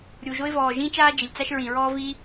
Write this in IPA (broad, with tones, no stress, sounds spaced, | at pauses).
ɾʲ u˩ ʒ o˥ ɪ̯ v ɔː˩ ʒ ĩ˥ t͡ʃ aː˥ d͡ʒ e˩ lʲ t͡s a˥ ʃ ɹ ĩ˩ ɹ ɔː˥ v i˥